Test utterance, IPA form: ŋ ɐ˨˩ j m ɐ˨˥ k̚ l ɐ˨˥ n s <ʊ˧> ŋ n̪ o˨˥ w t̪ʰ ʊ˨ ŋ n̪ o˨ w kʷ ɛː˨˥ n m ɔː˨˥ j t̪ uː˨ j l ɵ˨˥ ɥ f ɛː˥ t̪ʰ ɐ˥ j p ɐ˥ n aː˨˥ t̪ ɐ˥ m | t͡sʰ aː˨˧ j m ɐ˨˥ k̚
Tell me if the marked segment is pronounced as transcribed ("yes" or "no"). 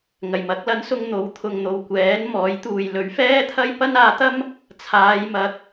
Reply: yes